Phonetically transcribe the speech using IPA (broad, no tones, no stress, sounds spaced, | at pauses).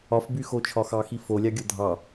ɒ f b y x o t͡ʃʰ ɒ x ɑ x i f o lʲ ɑ ɡʲ o dʱ ɑ